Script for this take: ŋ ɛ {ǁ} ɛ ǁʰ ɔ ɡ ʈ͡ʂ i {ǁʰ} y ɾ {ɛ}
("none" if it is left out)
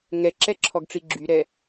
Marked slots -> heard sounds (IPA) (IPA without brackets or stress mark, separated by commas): ǁ, ɡ͡ǁ, ɛ